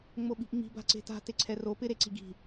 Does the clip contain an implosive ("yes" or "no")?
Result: yes